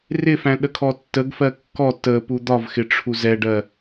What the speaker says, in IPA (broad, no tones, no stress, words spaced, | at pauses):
rɪfæ̃ ɗəkʰɔtːəɡfɜ kːɔ tə pud̪ɒvxɪ ʈ͡ʂʰuzɛɖɜ